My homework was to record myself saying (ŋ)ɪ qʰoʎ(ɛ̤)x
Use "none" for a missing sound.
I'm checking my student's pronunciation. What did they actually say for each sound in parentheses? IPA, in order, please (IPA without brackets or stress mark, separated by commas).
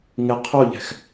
ŋ, ɛ̤